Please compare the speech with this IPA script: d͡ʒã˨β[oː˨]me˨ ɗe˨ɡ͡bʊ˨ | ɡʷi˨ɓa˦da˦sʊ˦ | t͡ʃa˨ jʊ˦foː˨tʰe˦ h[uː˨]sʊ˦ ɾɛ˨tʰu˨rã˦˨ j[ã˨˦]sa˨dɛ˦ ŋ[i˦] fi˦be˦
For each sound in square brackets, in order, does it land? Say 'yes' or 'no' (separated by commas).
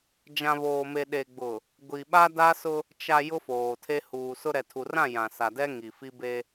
yes, yes, no, no